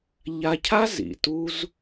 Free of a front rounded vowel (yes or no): yes